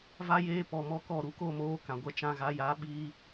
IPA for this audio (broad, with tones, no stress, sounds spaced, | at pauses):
v a˦ j eː˦ p ɔ˨ m ɔ˧ k ɔ˦˨ ɾ u˧ k o˦˨ m oː˦ k ã˨ ɡʷ ɛ˧ t͡ʃ ã˧ ɣ a˨˦ j a˨˦ ɓ iː˧